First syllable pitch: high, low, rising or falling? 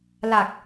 low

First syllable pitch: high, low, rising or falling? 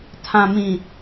low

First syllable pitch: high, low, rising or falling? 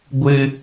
high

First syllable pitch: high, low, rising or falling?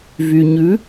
low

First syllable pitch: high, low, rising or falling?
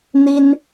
high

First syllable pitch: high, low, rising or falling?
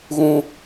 high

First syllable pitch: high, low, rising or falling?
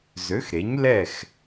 rising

